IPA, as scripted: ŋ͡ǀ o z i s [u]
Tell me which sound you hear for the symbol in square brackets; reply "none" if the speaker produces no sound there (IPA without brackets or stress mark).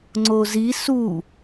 u